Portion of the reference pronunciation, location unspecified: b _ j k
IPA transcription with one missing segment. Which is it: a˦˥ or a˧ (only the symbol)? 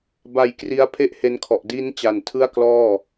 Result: a˧